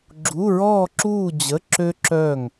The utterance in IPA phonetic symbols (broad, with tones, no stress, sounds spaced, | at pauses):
ɡ͡ǁ u˧˥˧ ɹ ɔː˥˧ ǁ uː˥˧ d͡ʑ ə˧˥˧ ǁ ø˥ ǁ œː˥˧ ŋ